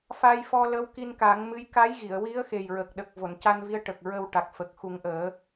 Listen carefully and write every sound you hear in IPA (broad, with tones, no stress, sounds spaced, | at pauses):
f a˧ j f ɔ˧ l ə˧˥ w k i˧ n k a˨˩˦ ŋ m ɨ˧˥ j k a˧˥ j ɣ i˨˩˨ ə̯ w i˧˥ ə̯ x e˨˩ j ɹ ə˨˩ k̚ ɗ ə˨˩ k̚ v o˨˩˨ n c a˧ n v i˧ ə̯ ʈ ə˨˩ k̚ ɹ ə˧ w ʈ a˨˩ k̚ f ə˨˩ k̚ x u˨˩˦ ŋ ʔ əː˨˩˦